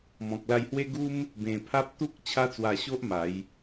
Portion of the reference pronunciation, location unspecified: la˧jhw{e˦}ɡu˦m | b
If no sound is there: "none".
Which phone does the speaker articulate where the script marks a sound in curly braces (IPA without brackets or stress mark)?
e˦